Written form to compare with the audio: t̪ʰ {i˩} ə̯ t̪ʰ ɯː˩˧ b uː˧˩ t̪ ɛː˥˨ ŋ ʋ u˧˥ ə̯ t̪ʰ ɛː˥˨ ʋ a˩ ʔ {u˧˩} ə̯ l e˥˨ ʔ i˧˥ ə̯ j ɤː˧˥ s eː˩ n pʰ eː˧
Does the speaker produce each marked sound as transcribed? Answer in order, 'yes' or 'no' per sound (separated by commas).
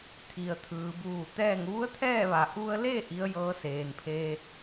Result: yes, no